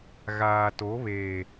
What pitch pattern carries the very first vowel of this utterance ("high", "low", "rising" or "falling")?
low